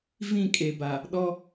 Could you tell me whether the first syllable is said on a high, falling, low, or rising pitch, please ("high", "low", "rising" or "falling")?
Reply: falling